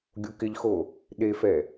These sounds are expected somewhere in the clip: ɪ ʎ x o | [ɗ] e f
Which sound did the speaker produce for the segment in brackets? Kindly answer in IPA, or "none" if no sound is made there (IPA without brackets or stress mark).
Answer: ɗ